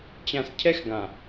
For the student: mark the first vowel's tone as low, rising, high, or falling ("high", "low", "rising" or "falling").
low